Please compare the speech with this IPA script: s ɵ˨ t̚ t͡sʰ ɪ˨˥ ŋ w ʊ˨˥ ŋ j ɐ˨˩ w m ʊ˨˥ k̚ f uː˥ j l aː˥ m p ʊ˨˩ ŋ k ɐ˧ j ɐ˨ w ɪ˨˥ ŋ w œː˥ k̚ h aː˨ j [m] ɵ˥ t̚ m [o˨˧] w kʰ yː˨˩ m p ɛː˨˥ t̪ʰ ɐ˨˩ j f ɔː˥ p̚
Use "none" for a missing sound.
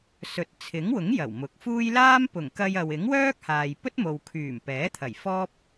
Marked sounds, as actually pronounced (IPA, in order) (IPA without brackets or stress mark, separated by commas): p, o˨